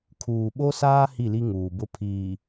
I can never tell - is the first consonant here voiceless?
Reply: yes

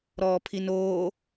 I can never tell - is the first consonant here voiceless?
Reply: no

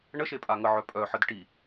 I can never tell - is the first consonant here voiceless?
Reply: no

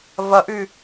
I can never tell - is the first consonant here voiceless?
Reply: no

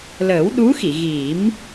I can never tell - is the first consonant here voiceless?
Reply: no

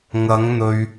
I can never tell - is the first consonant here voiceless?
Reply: no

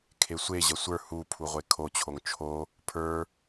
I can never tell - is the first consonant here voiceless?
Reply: yes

